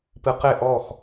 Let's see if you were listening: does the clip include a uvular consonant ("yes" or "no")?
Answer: yes